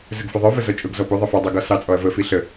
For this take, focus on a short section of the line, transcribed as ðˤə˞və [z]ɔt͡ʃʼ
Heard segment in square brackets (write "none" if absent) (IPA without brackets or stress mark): z